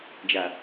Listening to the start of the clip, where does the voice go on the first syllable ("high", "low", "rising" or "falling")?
low